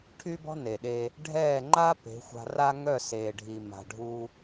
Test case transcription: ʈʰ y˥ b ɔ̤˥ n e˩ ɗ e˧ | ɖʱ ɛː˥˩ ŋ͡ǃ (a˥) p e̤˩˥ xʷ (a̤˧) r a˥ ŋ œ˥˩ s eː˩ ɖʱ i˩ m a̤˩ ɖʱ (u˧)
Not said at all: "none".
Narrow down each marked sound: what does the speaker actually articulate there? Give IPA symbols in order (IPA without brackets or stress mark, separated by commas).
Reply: a˥, a̤˧, u˧